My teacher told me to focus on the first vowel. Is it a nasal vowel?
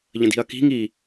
yes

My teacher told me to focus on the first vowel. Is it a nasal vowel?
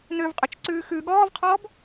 no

